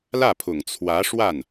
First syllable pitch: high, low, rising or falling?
falling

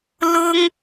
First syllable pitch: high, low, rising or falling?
high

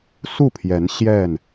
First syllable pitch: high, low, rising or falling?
falling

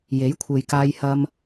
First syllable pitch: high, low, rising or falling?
rising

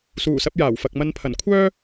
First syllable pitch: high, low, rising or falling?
low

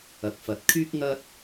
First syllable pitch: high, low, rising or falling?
low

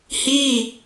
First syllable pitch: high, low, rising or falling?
falling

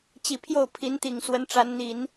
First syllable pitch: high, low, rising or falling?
low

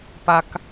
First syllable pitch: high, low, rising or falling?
low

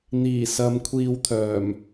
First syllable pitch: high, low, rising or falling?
low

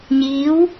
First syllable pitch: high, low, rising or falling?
rising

